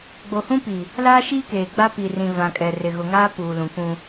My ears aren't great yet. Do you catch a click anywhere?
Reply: no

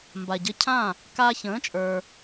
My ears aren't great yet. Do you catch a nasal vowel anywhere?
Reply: yes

